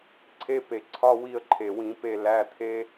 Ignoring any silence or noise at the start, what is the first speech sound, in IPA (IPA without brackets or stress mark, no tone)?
ǀʰ